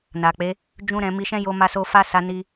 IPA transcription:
n a˨ k͡p e˨˦ | d͡ʒ ũ˦ ɾ ɛ̃˧ m i˧ ʃ ɛ̃˦ j o˧ m a˧ s o˧ f a˦ s a˧ n i˧

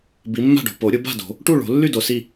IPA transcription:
b i˨˦ mː a̤˥˨ ɖ o̤˨ p o˨˩˦ ɾʲ ʊ˨˩˦ b a̤˥˨ d o̤˨˩˦ | ʈ u˥˨ ɭ o̤˨˩˦ lː y˥˨ d o˨ s i˥˨

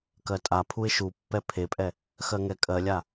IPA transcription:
k ɜ tʼ a pʰ u ɪ̯ ʃ u pː ɛ pʰ e pʼ ɛ | x ɜ ŋ ɛ kʼ ɜ lʲ a

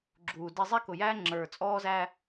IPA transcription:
ɡ͡ǁ uː˨ d ɛ˦ zˤ ɛ˦ k ʊ˨ j æː˦ ŋ͡ǁ ə˞˨ t͡sʼ ɔː˦ z æ˦

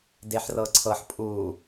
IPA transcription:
d e ħ r ɤ ǀʰ ɤ ħ pʼ u

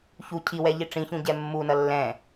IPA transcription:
ç u cʰ i w ɛ ʎ i ʈ͡ʂ ĩ ç ũ ɟ ɛ mː u n ʌ lː ɛ̃

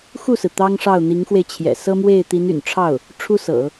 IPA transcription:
x u˥˩ s ɹ̩˩ t̪ ɑ˥ ŋ ʂ ɑ˥˩ ʊ̯ n̪ i˧˥ ŋ x w e˧ ɪ̯ t͡ɕʰ j ɛ̰˨˩ s ɤ˥ m w e˥˩ ɪ̯ t̪ i˧˥ n y̰˨˩ n ʈ͡ʂʰ ɑ˥˩ ʊ̯ | ʈ͡ʂʰ u˥ s ɤ̰˨˩˦

